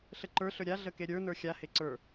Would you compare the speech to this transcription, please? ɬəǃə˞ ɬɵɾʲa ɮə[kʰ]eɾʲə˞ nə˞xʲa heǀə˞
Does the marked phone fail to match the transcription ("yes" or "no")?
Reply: yes